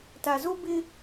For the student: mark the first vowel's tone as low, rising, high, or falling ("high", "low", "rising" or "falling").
low